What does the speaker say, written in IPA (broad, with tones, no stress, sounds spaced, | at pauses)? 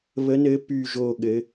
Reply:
β ə˧˥ n ɘ˧˥ p y˥˨ ʒ o˥˨ ɠ ɘ˧˥